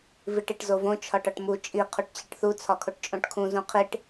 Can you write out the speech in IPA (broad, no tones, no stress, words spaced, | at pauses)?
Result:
viʈiʈzovõ t͡ʃʰɒʈɒʈmu t͡ʃʼi qʰuʈt͡ɕiʈθu t͡sʰɒkʰoʈt͡ʃʼõʈkʰũ zũqʰiʈ